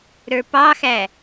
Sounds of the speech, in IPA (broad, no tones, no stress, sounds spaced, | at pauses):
ɾ ə˞ p ɑ x æ